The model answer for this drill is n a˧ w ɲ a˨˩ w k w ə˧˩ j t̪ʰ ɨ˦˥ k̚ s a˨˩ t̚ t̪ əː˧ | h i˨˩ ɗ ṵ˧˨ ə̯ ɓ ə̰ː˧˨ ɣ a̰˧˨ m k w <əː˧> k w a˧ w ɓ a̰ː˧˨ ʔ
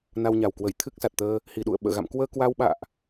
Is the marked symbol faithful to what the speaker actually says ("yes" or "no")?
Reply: yes